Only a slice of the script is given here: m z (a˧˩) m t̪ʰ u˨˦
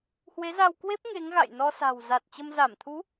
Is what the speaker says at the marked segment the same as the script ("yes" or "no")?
yes